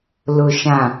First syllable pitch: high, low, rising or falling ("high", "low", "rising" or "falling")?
low